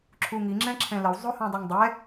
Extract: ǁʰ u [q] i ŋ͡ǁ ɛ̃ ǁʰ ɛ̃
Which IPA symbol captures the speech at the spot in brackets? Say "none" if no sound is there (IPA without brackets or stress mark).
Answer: ŋ